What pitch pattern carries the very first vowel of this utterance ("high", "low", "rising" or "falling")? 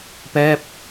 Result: falling